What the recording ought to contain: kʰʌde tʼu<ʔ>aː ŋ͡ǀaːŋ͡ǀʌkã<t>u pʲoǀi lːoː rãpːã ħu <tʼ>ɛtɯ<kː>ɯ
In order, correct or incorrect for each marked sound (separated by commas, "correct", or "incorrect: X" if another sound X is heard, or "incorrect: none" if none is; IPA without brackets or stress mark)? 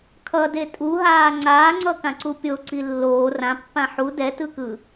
incorrect: ɦ, incorrect: ǀ, incorrect: d, incorrect: k